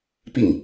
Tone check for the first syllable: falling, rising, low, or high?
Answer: falling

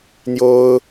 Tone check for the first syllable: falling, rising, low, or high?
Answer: high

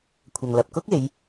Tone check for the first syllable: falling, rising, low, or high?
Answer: low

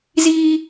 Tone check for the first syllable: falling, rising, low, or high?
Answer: high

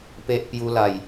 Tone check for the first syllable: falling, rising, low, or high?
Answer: high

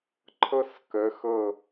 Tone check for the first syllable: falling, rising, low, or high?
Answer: high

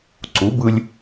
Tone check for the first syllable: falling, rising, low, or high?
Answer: rising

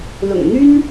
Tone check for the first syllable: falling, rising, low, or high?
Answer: low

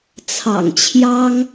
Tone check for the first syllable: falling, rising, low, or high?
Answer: low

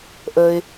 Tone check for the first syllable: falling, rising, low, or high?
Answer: low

